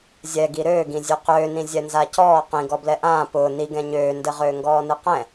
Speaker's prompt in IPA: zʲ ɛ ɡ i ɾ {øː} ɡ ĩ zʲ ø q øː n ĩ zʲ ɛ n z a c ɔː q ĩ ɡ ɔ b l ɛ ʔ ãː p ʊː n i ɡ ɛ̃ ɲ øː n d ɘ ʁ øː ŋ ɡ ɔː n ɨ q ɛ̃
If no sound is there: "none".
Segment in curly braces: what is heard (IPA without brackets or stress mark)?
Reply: øː